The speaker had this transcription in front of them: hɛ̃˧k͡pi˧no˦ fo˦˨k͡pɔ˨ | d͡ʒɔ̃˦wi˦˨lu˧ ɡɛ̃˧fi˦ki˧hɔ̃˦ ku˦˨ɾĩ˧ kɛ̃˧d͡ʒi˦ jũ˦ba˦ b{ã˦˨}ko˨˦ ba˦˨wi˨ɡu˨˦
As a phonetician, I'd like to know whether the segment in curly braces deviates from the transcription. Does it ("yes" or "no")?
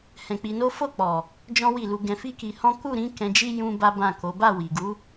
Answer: no